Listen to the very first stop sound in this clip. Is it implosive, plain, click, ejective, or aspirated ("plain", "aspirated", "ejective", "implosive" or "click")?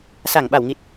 implosive